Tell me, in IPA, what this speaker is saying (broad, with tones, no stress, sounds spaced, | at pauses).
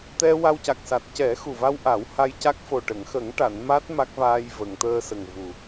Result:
t̪ ɛ˧ w a˧ w c a˨˩ k̚ s a˨˩ t̚ c ɛ˨˩˦ x u˨˩ v a˧ w ʔ a˨˩˦ w h a˧ j c a˦˥ k̚ f o˨˩ ʈ ə˨˩˨ ŋ x ə˨˩˦ ŋ ʈ a˨˩˨ n m a˦˥ t̚ m a˦˥ k̚ v aː˧ j v ə˨˩˨ ŋ t̪ əː˧ s ə˨˩ ŋ v u˨˩